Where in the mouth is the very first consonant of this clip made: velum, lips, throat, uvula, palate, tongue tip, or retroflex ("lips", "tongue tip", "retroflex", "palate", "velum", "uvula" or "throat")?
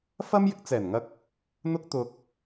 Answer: lips